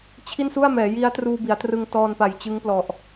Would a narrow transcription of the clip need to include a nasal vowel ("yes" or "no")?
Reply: no